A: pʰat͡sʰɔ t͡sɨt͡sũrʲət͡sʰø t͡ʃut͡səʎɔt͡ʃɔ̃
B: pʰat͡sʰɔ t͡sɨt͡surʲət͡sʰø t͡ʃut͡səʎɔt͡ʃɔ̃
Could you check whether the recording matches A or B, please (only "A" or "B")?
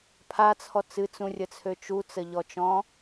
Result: A